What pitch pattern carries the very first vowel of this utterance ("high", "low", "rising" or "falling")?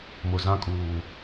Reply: low